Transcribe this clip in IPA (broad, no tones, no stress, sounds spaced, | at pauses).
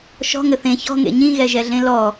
ʃ ɔ̤ ŋ ɘ θ ẽ ç ɔ̤ ŋ ḛ ɲ ĩ ɣ ɛ ʒ ɛ ɮ ẽ l ɔ